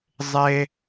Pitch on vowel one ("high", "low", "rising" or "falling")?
high